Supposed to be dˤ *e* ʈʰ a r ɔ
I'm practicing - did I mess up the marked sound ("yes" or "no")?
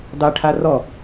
no